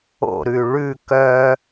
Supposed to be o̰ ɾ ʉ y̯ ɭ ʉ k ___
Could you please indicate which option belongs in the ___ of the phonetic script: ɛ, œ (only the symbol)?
œ